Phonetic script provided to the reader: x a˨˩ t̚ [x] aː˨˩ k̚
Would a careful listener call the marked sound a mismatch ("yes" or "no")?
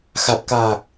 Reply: yes